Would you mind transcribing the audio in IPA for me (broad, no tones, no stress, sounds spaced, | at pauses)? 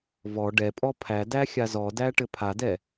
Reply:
v ɔ ɖ ɛ pʼ ɔ pʰ æ d æ xʲ a z ɔ d æ ʈ ɘ pʰ a d ɛ